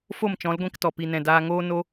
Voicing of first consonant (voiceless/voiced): voiceless